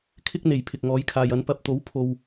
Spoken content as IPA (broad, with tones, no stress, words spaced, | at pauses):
kʰɪ˥k̚n̪e˨˩j pʰɪ˨k̚ŋɔː˨˥jkʰaː˨jɐ˨˧n pɐ˨p̚t̪o˨˥w pʰo˨w